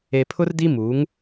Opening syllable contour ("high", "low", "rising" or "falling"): low